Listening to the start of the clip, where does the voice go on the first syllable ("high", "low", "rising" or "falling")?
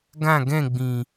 falling